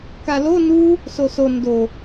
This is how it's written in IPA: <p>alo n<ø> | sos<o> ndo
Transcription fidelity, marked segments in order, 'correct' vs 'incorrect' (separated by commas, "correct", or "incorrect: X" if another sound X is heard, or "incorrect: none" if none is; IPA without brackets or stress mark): incorrect: k, incorrect: u, correct